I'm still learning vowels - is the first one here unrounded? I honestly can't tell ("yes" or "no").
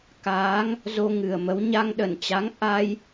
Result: yes